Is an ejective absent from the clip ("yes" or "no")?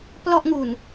yes